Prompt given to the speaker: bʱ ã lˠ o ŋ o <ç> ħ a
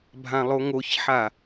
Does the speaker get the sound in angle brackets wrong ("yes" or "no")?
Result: no